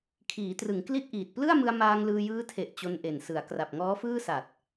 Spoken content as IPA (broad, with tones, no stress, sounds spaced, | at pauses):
kʰ iː˩˦ t r ɯ˩˦ ŋ k l i˥˩ t̚ ʔ iː˨˩ t̚ p l ɯ˥˩ a̯ m ɯ˧ a̯ m aː˧ ŋ l ɯː˧ j ɯː˦˥ tʰ e˨˩ ʔ t͡ɕ o˧ n ʔ e˨˩ n s ɯ˩˦ a̯ k r a˨˩ p̚ ŋ ɔː˦˥ f ɯː˥˩ s a˨˩ t̚